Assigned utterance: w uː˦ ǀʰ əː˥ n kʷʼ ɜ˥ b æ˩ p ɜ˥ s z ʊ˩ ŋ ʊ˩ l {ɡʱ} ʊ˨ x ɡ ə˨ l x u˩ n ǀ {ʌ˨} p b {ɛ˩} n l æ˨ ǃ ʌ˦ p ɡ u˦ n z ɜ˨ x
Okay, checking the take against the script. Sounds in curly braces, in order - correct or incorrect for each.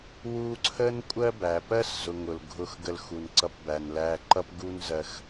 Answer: correct, correct, incorrect: æ˩

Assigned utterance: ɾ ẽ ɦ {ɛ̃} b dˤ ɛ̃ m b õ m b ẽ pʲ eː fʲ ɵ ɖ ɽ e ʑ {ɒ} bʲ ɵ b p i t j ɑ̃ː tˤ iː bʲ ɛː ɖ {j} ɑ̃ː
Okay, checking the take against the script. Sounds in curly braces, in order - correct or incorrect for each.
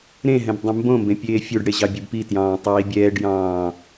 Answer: correct, incorrect: ɑ, correct

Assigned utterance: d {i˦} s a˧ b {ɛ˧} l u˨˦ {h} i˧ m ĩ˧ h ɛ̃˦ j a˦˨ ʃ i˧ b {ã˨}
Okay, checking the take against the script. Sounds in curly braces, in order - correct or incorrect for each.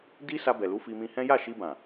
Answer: correct, incorrect: ɛ˨, incorrect: f, correct

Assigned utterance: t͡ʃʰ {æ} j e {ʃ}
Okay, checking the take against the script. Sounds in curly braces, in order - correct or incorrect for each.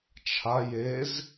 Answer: incorrect: a, incorrect: z

